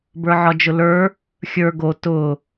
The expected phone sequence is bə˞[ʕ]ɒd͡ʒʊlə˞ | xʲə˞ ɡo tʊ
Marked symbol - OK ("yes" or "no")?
yes